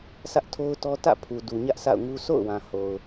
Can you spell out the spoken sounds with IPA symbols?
sä˦ʔtʰo˦ʊ̯tɔ˦ tä̰˦˨pʰu˨ du˨ɲä˦ʔ sa̰˦˨ʊ̯ŋu˦ sʰo̰˦˨ʊ̯wã˨ ho˨ʊ̯

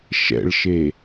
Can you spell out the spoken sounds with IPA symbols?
ʃɛ̰ɭʃe

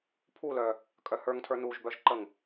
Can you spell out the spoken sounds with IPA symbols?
pʰulœ | kʼœhə˞ŋtʰə˞ nuʒbœʒǃəŋ

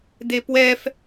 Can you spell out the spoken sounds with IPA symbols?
depwɛf

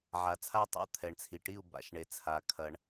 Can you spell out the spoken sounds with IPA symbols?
ʕa˩t͡sʰa˥˩tˤa̰˥˩ t̪ʰɛ˩ɳt͡sʰi˩ʈi˥˩u̯ ba̰˩ʃɳe˩t͡sʰa˩ kʰɐ˩ɳ

